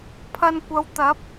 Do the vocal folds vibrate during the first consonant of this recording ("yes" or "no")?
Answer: no